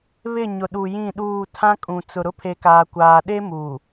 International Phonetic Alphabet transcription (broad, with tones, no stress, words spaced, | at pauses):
βɪ˦˨ ɲʊ˨ɗu˨jĩ˦˨ɗuː˦˨ tʰã˦kʼũ˨ t͡sʊ˨ɾʊ˦ pʰe˦kaː˦kʷaː˦ ɗe˦mu˨